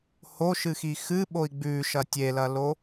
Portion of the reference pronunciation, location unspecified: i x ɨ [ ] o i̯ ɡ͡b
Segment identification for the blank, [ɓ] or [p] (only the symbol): ɓ